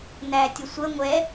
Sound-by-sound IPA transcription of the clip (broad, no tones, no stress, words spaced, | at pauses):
nætʲəsʷə ŋʷɛ